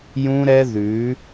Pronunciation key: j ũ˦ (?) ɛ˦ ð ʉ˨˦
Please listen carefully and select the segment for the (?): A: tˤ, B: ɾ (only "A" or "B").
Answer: B